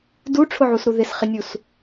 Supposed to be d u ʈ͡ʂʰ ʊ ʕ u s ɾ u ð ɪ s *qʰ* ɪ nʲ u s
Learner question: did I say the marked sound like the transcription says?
no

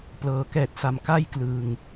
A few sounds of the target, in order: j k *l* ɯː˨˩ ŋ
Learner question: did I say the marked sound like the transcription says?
yes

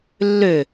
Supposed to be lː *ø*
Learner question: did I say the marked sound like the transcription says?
yes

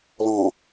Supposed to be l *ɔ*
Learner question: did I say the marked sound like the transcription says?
no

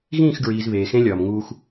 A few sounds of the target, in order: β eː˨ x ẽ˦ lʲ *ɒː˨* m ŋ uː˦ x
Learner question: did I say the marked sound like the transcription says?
yes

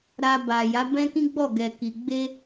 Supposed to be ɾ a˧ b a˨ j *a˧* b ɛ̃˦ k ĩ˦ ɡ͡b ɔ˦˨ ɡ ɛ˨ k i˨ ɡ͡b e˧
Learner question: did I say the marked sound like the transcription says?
no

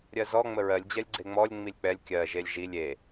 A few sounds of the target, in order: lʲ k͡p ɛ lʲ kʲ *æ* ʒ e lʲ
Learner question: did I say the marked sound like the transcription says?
no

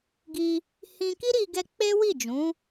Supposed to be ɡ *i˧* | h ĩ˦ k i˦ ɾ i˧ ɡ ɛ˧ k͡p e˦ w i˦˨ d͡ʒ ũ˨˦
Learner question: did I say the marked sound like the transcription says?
no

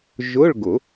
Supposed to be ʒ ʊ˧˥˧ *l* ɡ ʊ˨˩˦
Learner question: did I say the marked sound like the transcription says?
no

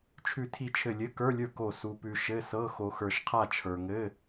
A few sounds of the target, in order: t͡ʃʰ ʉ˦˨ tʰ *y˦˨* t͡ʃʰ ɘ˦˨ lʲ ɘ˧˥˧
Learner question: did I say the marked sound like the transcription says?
no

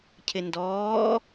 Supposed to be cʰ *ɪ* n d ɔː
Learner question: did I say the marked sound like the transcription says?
yes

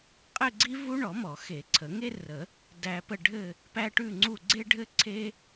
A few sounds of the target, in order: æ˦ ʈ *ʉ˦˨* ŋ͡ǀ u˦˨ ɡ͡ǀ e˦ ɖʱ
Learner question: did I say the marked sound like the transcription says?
yes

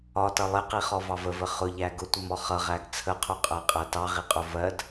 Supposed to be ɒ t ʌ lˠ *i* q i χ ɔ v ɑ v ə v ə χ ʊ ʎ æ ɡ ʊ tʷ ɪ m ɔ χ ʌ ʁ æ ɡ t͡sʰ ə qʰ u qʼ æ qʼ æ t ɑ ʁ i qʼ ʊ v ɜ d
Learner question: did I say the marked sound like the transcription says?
no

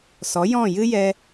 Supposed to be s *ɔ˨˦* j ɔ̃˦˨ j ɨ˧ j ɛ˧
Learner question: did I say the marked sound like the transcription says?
yes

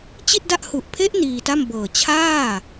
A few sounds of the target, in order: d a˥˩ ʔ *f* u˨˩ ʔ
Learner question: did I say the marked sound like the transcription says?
no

